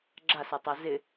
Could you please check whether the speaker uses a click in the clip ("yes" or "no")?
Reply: yes